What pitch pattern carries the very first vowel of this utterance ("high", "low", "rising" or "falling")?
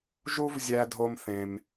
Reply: high